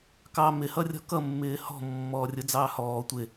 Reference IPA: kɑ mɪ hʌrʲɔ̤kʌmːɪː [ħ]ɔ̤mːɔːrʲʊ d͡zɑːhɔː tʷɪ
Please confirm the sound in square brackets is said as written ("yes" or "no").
no